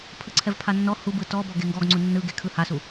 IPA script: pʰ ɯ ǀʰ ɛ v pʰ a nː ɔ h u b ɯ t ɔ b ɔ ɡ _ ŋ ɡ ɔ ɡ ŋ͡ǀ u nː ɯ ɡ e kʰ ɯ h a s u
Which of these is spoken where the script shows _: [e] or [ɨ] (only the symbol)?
e